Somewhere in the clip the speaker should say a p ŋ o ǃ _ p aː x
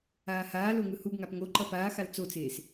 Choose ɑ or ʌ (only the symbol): ʌ